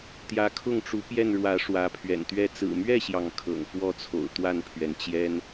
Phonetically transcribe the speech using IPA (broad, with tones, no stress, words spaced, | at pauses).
t̪jä˨˦kʰʊ˥˨ŋʈ͡ʂu˨˦ pjɛ˥˨nɻwä˨˦ ʂwä˨˦pʰɥɛ̰˨˩nt̪ɥɛ˥˨ t͡sɹ̩˨˩mɥɛ˥˨ɕjɑ˩ŋ kʰɤ̰˨˩ŋfwɔ˥˨t͡sʰo̰˨˩ʊ̯ t̪wa˥˨npʰɥɛ˩nt͡ɕjɛ˦n